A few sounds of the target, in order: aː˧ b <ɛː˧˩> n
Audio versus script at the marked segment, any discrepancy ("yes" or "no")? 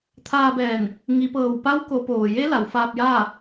no